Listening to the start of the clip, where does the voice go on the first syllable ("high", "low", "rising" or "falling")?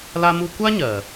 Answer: high